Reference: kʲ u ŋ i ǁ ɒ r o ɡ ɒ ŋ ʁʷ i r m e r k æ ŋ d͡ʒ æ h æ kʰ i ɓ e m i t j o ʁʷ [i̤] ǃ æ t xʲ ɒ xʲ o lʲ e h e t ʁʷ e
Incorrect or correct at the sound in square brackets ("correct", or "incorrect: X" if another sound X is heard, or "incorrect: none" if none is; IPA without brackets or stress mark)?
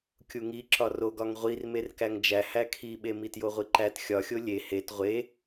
incorrect: i